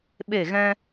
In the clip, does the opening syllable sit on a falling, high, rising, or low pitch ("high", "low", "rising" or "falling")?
falling